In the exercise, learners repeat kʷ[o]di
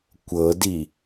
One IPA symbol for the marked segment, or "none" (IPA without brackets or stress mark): ɤ